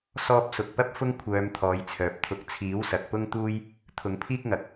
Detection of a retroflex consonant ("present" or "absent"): absent